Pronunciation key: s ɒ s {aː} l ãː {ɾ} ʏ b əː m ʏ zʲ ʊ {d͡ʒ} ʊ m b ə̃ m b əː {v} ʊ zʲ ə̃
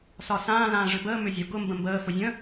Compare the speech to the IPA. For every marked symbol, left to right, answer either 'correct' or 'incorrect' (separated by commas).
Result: incorrect, incorrect, incorrect, incorrect